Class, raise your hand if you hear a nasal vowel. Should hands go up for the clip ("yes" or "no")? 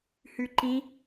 yes